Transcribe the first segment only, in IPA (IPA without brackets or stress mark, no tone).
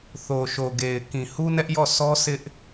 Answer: θ